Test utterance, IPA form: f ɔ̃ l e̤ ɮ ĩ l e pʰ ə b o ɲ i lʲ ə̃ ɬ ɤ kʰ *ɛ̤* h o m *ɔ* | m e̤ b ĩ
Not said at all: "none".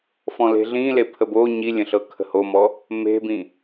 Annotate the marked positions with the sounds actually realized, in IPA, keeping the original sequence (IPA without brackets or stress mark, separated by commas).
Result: ə̤, ɔ